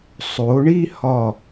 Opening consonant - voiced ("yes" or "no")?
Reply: no